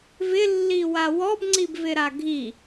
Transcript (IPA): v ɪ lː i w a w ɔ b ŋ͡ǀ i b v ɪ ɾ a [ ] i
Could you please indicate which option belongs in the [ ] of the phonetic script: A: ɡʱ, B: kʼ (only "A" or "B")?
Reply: A